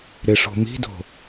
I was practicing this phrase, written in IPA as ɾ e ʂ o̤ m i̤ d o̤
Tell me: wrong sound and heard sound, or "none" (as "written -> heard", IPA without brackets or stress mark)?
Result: none